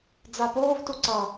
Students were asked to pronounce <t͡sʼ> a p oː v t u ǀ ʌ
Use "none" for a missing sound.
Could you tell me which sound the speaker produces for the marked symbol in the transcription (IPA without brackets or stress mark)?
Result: d͡z